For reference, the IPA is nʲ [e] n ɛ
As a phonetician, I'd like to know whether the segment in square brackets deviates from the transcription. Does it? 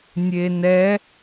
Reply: no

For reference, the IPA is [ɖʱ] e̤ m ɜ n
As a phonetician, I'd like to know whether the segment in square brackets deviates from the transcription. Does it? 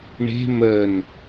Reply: yes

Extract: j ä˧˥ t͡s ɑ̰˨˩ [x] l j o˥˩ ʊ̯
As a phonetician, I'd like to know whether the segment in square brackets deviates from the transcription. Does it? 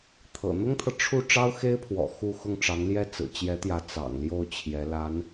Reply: yes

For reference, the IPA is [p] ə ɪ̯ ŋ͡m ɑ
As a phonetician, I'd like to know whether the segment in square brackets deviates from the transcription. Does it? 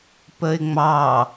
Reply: no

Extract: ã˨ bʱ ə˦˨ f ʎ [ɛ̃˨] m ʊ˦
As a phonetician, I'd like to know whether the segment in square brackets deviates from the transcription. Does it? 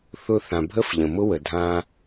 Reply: yes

